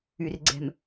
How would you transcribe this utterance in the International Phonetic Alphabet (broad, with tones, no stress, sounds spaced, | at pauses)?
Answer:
y˨ r ɡ͡ǀ ɛ̤˨ m